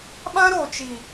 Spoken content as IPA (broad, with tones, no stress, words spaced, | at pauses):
ɓã˦ɾo˨t͡ʃi˨